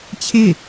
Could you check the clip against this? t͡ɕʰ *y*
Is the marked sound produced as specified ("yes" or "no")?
no